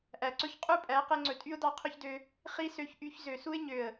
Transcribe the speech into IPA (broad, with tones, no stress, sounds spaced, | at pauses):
ʔ æ˨ ǀ ɵ˦ ç qʼ u˦ pʼ æ˨˦ q e˧ ŋ͡ǀ ɵ˨ tʼ y˦ ʊ̯ d ɑ˧ qʰ ɵ˦ ç d ø˧ | χ i˦ s ø˧ ç ʔ y˧ ç z ø˨ s u˦ ɪ̯ ɲ ø˨ ə̯